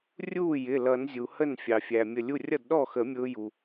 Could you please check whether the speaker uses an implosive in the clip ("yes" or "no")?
yes